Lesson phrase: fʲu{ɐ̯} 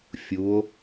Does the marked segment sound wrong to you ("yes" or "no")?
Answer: yes